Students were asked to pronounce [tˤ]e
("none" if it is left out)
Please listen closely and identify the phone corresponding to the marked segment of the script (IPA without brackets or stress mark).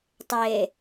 tˤ